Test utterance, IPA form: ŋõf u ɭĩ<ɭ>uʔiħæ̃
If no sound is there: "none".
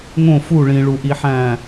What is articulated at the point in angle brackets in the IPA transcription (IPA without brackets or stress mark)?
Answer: ɭ